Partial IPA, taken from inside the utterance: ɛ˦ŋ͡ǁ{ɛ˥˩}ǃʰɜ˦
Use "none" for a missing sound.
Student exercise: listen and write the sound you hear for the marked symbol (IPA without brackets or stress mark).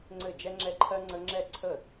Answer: ɛ˦